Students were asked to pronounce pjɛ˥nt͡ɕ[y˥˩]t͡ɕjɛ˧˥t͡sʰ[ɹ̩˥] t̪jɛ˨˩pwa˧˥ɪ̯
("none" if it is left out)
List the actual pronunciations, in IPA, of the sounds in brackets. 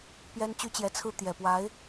y˥, ɹ̩˥

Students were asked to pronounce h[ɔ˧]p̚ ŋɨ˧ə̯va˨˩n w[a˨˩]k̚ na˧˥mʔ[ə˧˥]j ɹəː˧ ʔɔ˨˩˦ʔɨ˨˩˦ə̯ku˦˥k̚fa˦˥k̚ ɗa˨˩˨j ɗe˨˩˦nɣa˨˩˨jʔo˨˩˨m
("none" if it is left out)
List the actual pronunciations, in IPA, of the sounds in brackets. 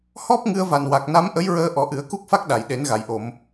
ɔ˦˥, a˨˩, ə˧˥

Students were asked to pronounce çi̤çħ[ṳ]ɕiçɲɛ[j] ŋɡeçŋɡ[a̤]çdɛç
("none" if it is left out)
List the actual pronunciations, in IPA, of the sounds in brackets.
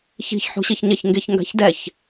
ṳ, ç, a̤

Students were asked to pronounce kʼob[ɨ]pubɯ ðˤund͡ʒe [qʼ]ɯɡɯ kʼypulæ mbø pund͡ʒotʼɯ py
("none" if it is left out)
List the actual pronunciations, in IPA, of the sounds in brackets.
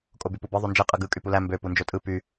y, qʼ

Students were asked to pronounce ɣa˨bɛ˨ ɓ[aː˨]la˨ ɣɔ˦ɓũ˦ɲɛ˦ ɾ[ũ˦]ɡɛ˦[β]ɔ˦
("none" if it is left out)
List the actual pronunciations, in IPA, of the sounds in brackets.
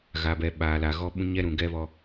aː˨, ũ˨, β

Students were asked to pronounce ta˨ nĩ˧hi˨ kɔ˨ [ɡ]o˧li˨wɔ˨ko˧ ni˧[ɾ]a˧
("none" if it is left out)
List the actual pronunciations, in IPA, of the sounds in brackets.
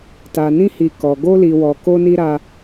ɡ, ɾ

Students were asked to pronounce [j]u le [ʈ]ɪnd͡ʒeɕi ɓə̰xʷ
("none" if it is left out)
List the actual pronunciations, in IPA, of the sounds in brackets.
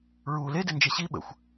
ɹ, d

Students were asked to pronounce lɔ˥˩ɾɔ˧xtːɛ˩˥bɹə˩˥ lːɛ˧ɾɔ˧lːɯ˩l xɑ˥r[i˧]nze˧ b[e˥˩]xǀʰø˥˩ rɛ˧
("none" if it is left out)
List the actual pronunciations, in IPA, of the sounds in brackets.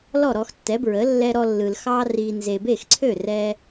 i˧, e˥˩

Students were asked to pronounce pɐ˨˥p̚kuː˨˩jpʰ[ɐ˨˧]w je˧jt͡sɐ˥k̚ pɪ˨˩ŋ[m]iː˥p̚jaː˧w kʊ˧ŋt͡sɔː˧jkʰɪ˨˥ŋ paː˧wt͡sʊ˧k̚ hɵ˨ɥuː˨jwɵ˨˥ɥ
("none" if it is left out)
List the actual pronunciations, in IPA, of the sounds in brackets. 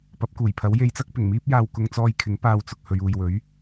ɐ˨˥, m

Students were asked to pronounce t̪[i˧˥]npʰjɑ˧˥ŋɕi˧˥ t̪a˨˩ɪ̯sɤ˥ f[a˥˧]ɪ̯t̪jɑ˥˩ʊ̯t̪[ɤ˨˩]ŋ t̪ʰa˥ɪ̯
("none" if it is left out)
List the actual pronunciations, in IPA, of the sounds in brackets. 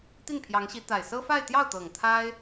i˥˩, a˥˧, ɤ˨˩

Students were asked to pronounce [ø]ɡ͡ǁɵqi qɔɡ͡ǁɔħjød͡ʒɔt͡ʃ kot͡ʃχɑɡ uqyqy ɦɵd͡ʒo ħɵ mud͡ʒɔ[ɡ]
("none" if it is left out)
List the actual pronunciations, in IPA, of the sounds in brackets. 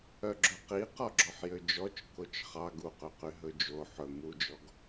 œ, ɡ

